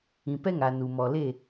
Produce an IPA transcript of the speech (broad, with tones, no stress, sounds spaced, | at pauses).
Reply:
ĩ˨ p ɛ˦ ŋ a˨ n u˨ m ɔ˨ l e˦˨